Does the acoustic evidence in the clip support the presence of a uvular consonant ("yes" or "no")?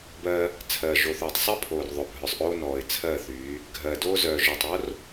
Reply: no